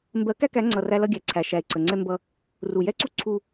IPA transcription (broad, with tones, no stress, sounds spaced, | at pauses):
m b ɜ˨˦ k æ˦ k æ˨˦ ŋ͡ǀ ʌ˨ r æ˦ l ʌ˦ ɡʲ æ˨ ǀʰ æ˨ ʃ æ˨ e̯ ǀ ə˨ ŋ͡ǀ ɛ˦ m b ʌ˦ | r u˨ j ɛ˦ ǀ u˦ ǀʰ u˦